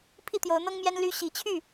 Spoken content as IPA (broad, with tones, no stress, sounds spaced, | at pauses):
pʰ i˥˨ t̪ j o˨˦ ʊ̯ n̪ ɤ˦ ŋ m j ɛ˦ n l y˦ ɕ i˨˦ t͡ɕʰ y˥˨